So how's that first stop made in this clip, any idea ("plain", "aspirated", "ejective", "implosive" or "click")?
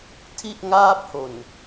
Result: aspirated